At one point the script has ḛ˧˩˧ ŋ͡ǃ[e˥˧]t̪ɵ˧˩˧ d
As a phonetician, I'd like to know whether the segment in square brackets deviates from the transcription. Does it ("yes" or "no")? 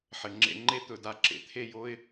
no